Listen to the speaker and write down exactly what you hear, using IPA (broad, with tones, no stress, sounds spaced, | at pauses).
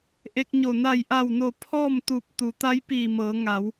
ʔ e˧ k̚ ɲ o˧˩ n a˧˩ j ʔ a˧˩ w n o˧˩ pʰ ɔː˥˨ m t̪ u˧˩ p̚ t̪ u˩˧ t̪ a˧˥ j p iː˧˩ m ɤː˩˧ ŋ a˩˧ w